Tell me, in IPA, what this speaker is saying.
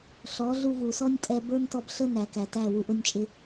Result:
ɬɔ˨˦ɮu˧vu˨sɔ˦nʲ tʼɛ˧bə˞˦ntɔ˧b ɬə˦ næ˨kæ˨tæ˦˨ wu˨ʔʊ˧nʲt͡ʃʼɪ˧

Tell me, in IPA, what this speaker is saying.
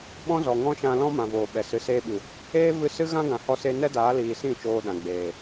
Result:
ɓɔ̃˦zɔ˨ ŋɔ̃˦ʃã˧lɔ̃˦ mã˨voː˨ɓɛ˨ sɨ˨seː˧ɓɨ˨ | eː˦ vɨ˧sɨ˦ ɣã˦ɡã˨hɔ˧se˧ nɛ˦daː˨˦liː˨sĩ˦˨ t͡ʃoː˧ɗã˨ ɡ͡beː˨

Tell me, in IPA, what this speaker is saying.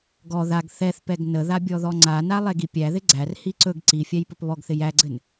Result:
ɡɔ ðaɡ θɛθpɛɡ nəða bʲɔðɔŋ͡ǀana lˠɛɡipʲæðɪ ɡ͡ǀærhi ǀɵɡ ǀifʲæj pɵpβɔɡθɪ jæɡ͡ǀɘn

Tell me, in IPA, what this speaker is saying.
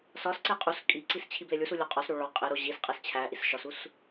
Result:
sɒsǀe qʼus kʼiǀis t͡ɕʰiblelʲusu lʲoqʼɒsɾo ɭɒ qʼeɾo ʑisqʼes t͡ɕʰæʔis ʃɒsus

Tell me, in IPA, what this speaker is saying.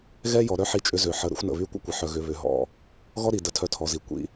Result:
ɣɛ˦jɔ˨ɾœ˦ ħi˦t͡ʃʼʏ˦ zø˨ħə˨˦ ɾə̰˦xʷnə̰˨βy˦ kʷə̰˦kʷɪ˨ħœ˨ ɣʏ˨βʏ˨ ɦɔ̰˦ | ɣɔ˦ɾi˨ də˨tʰœ˨ tʰɔ˨zi˨ kʷḭ˦

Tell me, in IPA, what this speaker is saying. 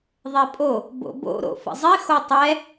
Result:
ðˤepʼo | bo̰bo̰ ɾo̰fə̰zˤi xotˤɛ

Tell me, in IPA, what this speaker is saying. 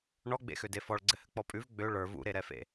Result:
ɳɔɡ͡bḛxøde fɔɭɡ͡ǀɘhɘ k͡pɔpʼʉv ɡ͡bø ɭə˞ vṵɾeɾɛfḛ

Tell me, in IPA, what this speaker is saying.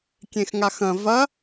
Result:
kʲẽxŋaxɐ̃ vɐ

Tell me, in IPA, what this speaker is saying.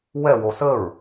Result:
wɛwo səɹ

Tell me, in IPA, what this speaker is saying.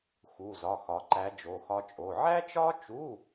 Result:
xu˧˥˧zɒ˧˥˧xɒ˧˥ ǃæ˧˥ d͡ʒo˧˥˧xɒ˥t͡ʃʼo˧˥˧ ʕæ˥t͡ʃɒ˥t͡ʃu˧˥˧

